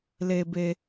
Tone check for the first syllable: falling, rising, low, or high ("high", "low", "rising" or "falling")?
low